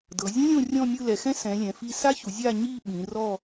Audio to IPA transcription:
dɤ˩˧zʲõ˦˥lʲõ˦˨rʲɔ̃˦˨ mʲɯ˦˨lɛ˩˧xɛ̃˦˥ sɛ̃˩˧lʲɛ̃˩˧fi˦˨ sa˦˥çu˩˧ zʲa˦˨ɲi˦˨ ɓĩ˩˧rɔ˦˨

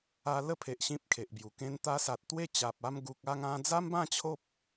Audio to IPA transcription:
a˧lə˥˧pʰe˨ʔ ɕĩ˦p̚kʰe˨ʔbju˨˩ kẽ˧nt̪a˧sa˨t̚ t̪we˥˧t͡ɕa˨p̚ a˧mɡu˨k̚a˥˧ŋã˧ d͡za˦mbã˥˧ t͡ɕʰo˦p̚

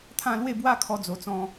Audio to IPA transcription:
t̪ʰã˥˧lwe˥˧bwa˦ kʰɔ˧d͡zo˨˩t͡sɔ̃˧

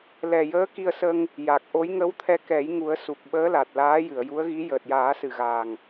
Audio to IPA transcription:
lɛ˨˩jəː˧˥ki˧ə̯sə˧ŋ | ja˨˩k̚ʔo˧˥j ŋə˧˥wt̪ʰɛ˧kɛ˨˩˦jŋu˨˩˦ə̯ su˨˩k̚ɓəː˧˥la˨˩t̚ laː˧˥jɨ˨˩˨ə̯ ju˧˥ə̯ɣi˧˥ jəː˨˩t̚jaː˨˩˦sɨ˨˩ɣaː˨˩ŋ

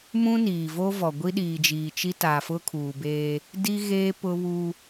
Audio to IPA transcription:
mũ˦niː˨ vo˦vɔ˨ ɡʷi˦ ɗiː˨d͡ʒiː˨t͡ʃi˦ ta˨fʊ˦kʰuː˨beː˦ | di˦ɣeː˦ pʊ˦βu˦

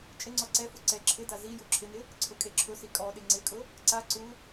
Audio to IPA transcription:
t͡ʃʼɪŋ͡ǀɔ ǀɛfu ǀɛ ǁʰɪda zi juǁʰɪnɪ | ǀʰʊkʼeǁʰʊsi kʼɔɗɪ ŋ͡ǀɪkʼʊ | ǀa ǀu

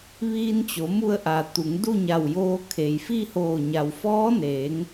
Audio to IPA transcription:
ʋiː˧nt͡ɕo˩˧mu˧ə̯ʔa˩ t̪u˩˧ŋ du˥˨ɲa˧˩wjoː˧ kʰe˩jfi˥˨hoː˧˩ ɲa˩wfɔː˧˥neː˩˧ŋ

